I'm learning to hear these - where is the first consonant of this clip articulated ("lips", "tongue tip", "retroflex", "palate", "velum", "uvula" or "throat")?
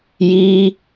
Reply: palate